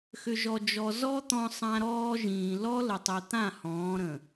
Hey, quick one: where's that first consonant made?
velum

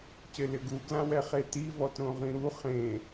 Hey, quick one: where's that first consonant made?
palate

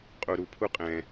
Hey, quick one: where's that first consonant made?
uvula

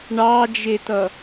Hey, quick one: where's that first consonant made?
retroflex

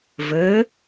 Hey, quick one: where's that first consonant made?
lips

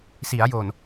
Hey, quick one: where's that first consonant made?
tongue tip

